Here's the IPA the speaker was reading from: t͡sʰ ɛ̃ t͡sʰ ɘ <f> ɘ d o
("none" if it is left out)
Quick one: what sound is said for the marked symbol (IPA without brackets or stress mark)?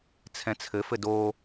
f